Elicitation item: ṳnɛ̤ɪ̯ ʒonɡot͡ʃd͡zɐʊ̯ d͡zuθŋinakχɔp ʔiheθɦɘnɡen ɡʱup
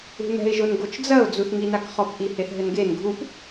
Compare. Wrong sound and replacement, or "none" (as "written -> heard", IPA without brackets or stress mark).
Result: none